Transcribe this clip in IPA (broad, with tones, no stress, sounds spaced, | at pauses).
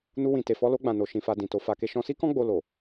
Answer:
n u˧ w ĩ˨ t e˨ f ɔ˧ l o˧ ɡ͡b ã˨ n o˨ ʃ ĩ˧ f a˧ d ĩ˨ t o˨˦ f a˧ k e˦ ʃ ɔ̃˧ s i˦ k ɔ̃˦ ɡ͡b o˧ l o˨